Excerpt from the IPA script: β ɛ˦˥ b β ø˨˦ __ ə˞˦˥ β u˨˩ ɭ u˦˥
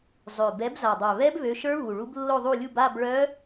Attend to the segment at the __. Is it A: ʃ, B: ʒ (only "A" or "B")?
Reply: A